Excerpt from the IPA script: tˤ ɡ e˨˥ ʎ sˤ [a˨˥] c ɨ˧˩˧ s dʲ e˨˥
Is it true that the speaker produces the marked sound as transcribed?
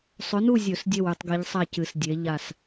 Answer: no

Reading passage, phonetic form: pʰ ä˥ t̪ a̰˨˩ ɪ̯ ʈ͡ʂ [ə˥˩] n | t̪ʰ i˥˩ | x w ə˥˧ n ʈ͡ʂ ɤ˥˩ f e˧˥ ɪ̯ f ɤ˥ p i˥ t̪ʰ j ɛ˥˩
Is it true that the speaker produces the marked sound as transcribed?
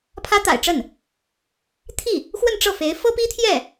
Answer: yes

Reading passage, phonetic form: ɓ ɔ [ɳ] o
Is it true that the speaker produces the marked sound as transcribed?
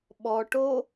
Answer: no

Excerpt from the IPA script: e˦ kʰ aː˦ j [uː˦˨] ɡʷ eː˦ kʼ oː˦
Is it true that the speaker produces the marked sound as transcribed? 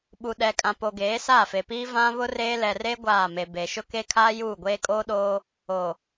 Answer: yes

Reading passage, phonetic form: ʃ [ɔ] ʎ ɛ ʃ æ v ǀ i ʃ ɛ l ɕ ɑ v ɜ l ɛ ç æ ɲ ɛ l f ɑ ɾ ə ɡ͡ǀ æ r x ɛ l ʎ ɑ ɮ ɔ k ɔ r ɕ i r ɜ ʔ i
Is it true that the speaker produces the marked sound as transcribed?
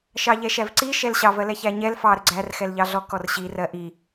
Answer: no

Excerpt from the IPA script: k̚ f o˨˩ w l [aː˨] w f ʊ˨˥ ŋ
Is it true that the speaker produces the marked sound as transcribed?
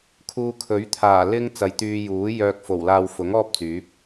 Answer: yes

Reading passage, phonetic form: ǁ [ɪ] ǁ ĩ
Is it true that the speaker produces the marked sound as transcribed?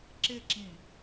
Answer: yes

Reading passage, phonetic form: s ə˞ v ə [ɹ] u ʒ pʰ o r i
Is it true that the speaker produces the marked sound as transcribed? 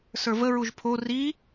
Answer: yes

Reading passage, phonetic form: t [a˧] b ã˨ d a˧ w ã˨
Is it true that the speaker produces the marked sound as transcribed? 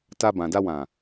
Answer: yes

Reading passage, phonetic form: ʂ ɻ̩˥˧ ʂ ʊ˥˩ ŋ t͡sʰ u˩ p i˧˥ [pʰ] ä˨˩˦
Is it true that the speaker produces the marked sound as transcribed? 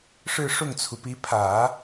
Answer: yes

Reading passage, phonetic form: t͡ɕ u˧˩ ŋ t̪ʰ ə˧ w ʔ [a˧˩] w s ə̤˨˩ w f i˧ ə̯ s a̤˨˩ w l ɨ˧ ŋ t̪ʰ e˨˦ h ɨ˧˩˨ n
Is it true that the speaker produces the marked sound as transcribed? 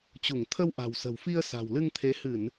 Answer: no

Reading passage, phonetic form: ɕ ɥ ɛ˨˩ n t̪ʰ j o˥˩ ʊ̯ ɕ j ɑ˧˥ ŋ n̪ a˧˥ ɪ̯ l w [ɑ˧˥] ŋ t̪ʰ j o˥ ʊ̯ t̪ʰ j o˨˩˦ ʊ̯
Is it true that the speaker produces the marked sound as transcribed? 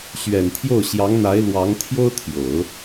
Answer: yes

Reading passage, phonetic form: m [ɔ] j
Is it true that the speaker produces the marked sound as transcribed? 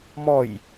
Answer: yes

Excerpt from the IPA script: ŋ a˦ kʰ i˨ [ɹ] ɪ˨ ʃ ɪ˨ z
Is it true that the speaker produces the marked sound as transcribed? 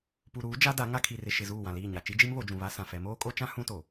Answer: no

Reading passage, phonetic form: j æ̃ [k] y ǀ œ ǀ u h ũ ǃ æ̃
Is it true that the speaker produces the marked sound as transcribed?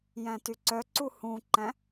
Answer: no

